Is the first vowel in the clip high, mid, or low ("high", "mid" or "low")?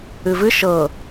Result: high